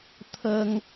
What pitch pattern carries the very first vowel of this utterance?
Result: high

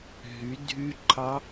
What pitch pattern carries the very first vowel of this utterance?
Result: rising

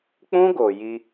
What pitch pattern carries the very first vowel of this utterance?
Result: high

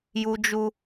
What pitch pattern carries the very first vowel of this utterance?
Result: high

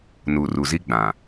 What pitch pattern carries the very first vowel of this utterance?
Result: low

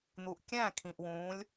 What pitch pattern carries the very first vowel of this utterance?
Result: low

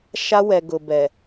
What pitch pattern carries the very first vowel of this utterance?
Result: high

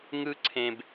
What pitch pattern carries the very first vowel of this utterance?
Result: high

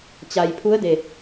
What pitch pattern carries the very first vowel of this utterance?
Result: low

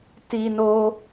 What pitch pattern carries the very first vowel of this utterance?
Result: high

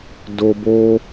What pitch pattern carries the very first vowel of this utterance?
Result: high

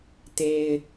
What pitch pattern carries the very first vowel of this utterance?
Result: low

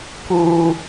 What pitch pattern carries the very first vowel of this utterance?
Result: high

